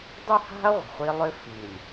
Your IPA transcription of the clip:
dˤ ɵ˦ h a̤˦ ɐ̯ ʁʷ ə̤˨ χʷ i˦ lˠ ʏ˦ f i˨ lʲ

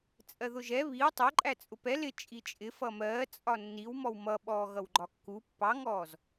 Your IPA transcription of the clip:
t͡sʼ ɜ ð ʊ ʒ ɛ β i w tˤ ʌ ǃʼ æ t͡sʼ ʊ p ɛ l ɪ t͡ʃʼ i t͡ʃʼ ɪ f ʌ m ɜː t͡sʼ ɒ nː i w m ɔ w m ʌ ɓ ɔː ɣ ʌ w ɡ͡ǃ ɒ kː u pː ɑ ŋ ɔː z

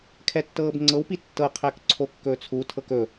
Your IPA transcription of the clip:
kʰ ɛ tː ɤː b ŋ͡ǀ ɤ w p i tː ɤ qʰ æ k ǀʰ o kː ɵː t͡sʰ u tʰ ɤ k ɵ

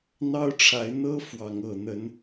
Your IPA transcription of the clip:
n̪ ɑ˦ ʊ̯ ʈ͡ʂʰ a˨˦ ɪ̯ n̪ ɤ˦ f w ɑ˨˦ ŋ ɤ˨˩ n̪ ə˨˦ n

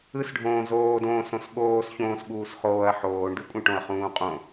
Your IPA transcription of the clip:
ɯ s ɖʱ õː z oː d õː s õ s ɠ oː s ç õː s ɠ uː s χ oː ɐ̯ ħ oː ɳ d ɯ kʷʼ ə̃ ʈ õ ɐ̯ χ ũː qʼ õ

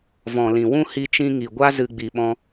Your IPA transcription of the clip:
v ɔ̃˨ l ĩ˨ w ũ˦ h i˧ t͡ʃ ĩ˧ ŋ i˨ ɡʷ a˦ z ɨ˧ ɡ͡b i˨ ɓ ɔ̃˧

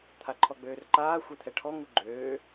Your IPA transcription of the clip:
t̪ʰ a ǃʰ ɔ ɡ͡b øː r ǃ aː xʷ e t̪ʰ ɛ ʈʰ ɔ ŋ u ɡ͡ǃ øː

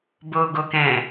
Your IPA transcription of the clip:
b o ɡ o k ɛ̃

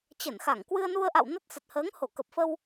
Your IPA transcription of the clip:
t͡ɕ ə˧˩ n x a˧˩ ŋ k w ɨ˧ ə̯ n u˧ ə̯ ʔ a̰˧˨ w n ə˦˥ t̚ s ə˨˩ t̚ h əː˨˦ ŋ h o˧˩ k ə˨˩ p̚ f ə˧ w

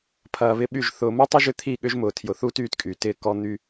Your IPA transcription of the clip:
pʰ ɐː˨ β ɪ˦ ɓ y˦˨ ʒ θ ʊː˨ m u˦ tˤ ɪ˦ ʒ ʏ˦ t̪ʰ i˦˨ ɠ ʏ˦ ʒ m ʊː˨ tʰ j ʊ˨ θ uː˦ t yː˦ t kʼ yː˨ t ɪː˦ k ɔ˦ n̪ y˦

